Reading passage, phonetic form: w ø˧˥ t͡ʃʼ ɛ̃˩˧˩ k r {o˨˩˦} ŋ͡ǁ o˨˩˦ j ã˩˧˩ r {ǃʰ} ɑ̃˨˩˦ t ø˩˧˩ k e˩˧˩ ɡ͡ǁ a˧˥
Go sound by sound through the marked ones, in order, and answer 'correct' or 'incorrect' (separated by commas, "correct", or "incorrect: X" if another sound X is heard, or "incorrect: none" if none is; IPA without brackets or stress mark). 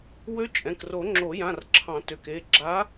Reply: correct, incorrect: ǁʰ